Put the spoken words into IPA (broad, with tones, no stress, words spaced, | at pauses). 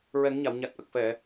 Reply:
ɹɛ˨˩˦ŋɲa˨˩˨wɲa˨˩t̚ ʔə˨˩k̚fɛ˨˩˨